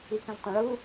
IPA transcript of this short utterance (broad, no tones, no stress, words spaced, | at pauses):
ikə̃ztˤõɭu